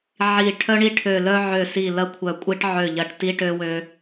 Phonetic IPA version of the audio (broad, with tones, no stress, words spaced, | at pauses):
ʕi˨˩ ʈʰœ˧ɳi˧ʈʰø˨˩lœ˧ ʕø˨˩si˨˩ lɐ˧kʷʰœ˨˩kʷʼi˧ʈ ʕø˨˩ʎɐ˨˩ʈ ti˧ʈø˧wø˧